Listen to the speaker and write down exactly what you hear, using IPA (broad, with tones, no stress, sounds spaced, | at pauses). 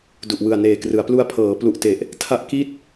d u˨˩ ʔ w ɯ˨˩ a̯ n eː˨˩ k r ɯ˩˦ a̯ p l u˧ a̯ pʰ ɤː˩˦ p l u˨˩ ʔ t e˨˩ ʔ | tʰ a˥˩ ʔ k i˥˩ t̚